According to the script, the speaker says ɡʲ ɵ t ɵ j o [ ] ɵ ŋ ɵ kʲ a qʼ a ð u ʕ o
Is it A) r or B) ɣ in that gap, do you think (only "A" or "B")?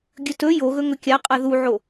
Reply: B